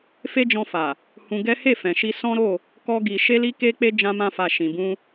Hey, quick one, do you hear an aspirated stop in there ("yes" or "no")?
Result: no